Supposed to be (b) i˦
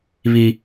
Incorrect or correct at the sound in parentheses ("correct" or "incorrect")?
incorrect